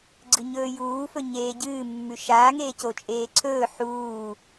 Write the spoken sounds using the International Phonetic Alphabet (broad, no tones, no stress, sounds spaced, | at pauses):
ɡ͡ǀ ɨ ɲ ɵː j uː f ɵ ɲ eː ɟ ɨː mː ʉ ʃ aː ŋ eː c o t͡ʃʼ eː ǀʰ ɵː ħ uː